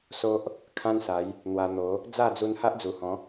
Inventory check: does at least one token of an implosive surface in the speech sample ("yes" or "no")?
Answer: no